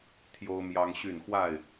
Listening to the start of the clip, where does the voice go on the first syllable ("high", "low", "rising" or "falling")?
high